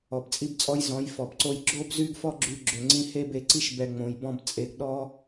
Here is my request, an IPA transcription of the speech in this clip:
ɔ˨ b t͡sʼ i˦ b t͡sʼ ɔ˦ j z ɔ̃˨˦ j f ɔ˨ b ǀ o˦ j ɡ͡ǁ o˦ b z y˦ ɡ f ɔ˦ ɡ͡ǁ y˦ ɡ͡ǁ ø˧ ŋ͡ǀ ĩ˦ h e˦ b e˧ ǀ i˦ ʃ b ɛ˧ ŋ͡m õ˨ j b ɔ̃˧ b t͡sʼ e˧ ɡ ɗ ɔ˦

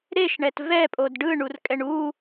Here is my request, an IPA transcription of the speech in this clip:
ɾ e ʃ ɳ ɛ t v ɛ pʼ o d ɖ ɯ ɳ u r kʼ ɛ ɳ u

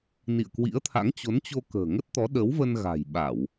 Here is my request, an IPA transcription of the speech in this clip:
n ḭ˧˨ ə̯ k w ḭ˧˥ ə̯ t̪ʰ a̰˧˥ ŋ t͡ɕ o˨˦ n t͡ɕ o˧ k ə̤ː˨˩ ŋ ə˦˥ t̚ t̪ ɔ˨˦ ɗ ə˨˦ w v ə˧ n ɣ a̤˨˩ j ɓ a˧˩˨ w

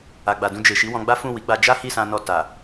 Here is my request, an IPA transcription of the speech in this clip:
a˨ ɡ͡b a˨ d ũ˧ d͡ʒ e˨ ʃ i˨˦ w ɔ̃˧ ɡ͡b a˦ f ũ˦˨ w i˨˦ ɡ͡b a˧ d͡ʒ a˦ h i˦˨ s ã˧ n ɔ˧ t a˨

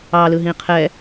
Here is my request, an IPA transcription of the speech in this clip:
ɑ l ɯ ɦ ĩ qʰ ɛ

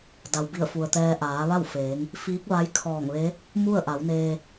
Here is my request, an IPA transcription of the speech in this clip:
d a˩ w b i˧˩ ə̯ f u˩ ə̯ t̪ ɛː˧ ʔ aː˩˧ ʋ a˥˨ w f eː˩˧ ŋ | f iː˧˥ k̚ ʋ a˧˥ j kʰ ɔː˧˩ ŋ ʋ e˧˥ | m u˥˨ ə̯ ʔ a˩˧ w n eː˧

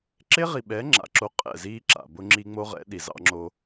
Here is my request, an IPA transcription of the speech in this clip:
ǁ e˦ ʁ i˨ ɓ ɛː˨˦ ŋ͡ǁ a̰˨ ǁ o˦ qʼ ɛ̰˦˨ z iː˦ ǁ a̰˨ b ʊ˦ ŋ͡ǁ i˦ ŋ͡m o˦ ʁ ɛ̰˨˦ ɗ i˨ z ɑ̰˦ ŋ͡ǁ o˦

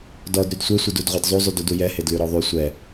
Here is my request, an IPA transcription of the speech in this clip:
d ɔ d ɾ y d sʷ e sʷ e d u d ʁʷ ɛ d zˤ u zˤ y d u d u j ɛ h e d l y ɾ ɔ ðˤ y sʷ ɛ

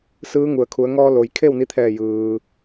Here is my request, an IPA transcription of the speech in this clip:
s ɯː˧˥ ŋ u˩ ə̯ kʰ u˩˧ ə̯ ŋ ɔː˧ l o˩ j kʰ e˥˨ w n i˧ t̪ʰ ɛː˧˩ j ɯː˩

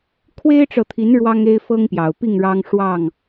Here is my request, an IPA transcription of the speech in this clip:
kʰ w e˦ ɪ̯ ʈ͡ʂ ɤ˨ t̪ʰ i˨˦ n ɻ w ɑ˦ ŋ e˦ ɪ̯ f ɤ˦ ŋ p j ɑ˨˩ ʊ̯ p i˥˨ ŋ ɻ ɑ˦ ŋ ʂ w ɑ˥˨ ŋ

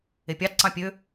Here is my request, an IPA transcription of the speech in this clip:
e pʲ ɑ t ǀ ɑ̃ pʲ ø

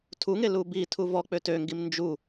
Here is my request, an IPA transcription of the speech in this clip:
tʰ u ŋ e l u b i tʰ u v ɔ k͡p ø t ø ŋ ɡ i m n d͡ʒ u

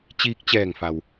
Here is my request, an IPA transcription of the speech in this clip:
t͡ɕ iː˧ k̚ t͡ɕ ɛː˧˩ ŋ f a˩ w

